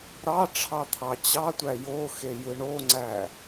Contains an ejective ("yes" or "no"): no